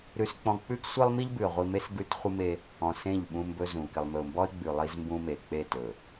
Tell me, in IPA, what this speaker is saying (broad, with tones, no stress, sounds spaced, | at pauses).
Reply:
ɾ ʉ˦ s k͡p ɔ̃˦ k͡p ʉ˦ ɡ sʷ e˦ lˠ m i˦ ʎ b ʉ˨ ə̯ ʁʷ i˦ m e˦ s ɡ ʉ˦ t χʷ ɯ˦ m e˦ | ɔ̃˨ s ẽ˦˨ ʎ ɓ ũ˦ m b ɵ˦ z ũ˨ k ɪ˨ lˠ m ɵ˨ ʊ̯ m b ɔ˦ ɪ̯ ɡ͡b ʉ˨ lˠ i˦ z m b ũ˦ m e˨ k͡p e˦˨ t ɵ˨